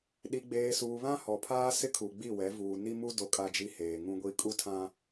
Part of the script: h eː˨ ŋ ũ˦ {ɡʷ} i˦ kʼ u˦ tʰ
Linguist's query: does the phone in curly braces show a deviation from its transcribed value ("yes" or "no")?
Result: no